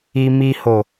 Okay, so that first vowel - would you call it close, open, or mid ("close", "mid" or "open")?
close